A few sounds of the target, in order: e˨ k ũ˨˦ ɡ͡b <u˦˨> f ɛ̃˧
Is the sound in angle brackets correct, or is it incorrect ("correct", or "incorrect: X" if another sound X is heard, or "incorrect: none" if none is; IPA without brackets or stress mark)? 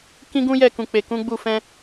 correct